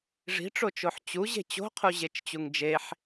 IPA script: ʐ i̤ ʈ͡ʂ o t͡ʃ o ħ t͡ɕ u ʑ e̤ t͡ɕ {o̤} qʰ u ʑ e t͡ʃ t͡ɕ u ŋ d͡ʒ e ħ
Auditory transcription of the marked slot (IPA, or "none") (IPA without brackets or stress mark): o̤